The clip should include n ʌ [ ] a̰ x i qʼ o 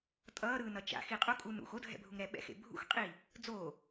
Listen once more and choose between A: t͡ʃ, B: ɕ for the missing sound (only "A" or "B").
A